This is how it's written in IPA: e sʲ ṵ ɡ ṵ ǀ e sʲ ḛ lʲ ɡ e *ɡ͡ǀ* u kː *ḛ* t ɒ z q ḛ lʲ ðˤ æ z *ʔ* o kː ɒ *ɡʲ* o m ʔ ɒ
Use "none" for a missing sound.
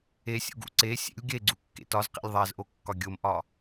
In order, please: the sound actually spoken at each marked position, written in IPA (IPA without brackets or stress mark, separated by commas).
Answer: ɡ͡ǀ, ḛ, ʔ, ɡʲ